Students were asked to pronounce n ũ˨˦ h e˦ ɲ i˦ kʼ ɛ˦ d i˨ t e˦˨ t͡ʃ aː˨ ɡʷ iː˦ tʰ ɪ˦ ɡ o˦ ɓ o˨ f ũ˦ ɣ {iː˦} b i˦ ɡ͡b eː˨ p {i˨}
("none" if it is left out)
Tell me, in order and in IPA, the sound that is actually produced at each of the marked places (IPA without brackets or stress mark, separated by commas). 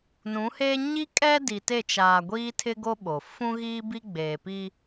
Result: iː˦, i˦